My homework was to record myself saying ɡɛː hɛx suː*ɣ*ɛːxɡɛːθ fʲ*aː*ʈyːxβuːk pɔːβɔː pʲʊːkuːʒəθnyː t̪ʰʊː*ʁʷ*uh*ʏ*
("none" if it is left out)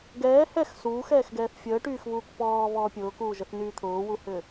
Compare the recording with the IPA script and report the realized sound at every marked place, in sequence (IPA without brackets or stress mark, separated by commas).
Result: x, əː, w, ʏ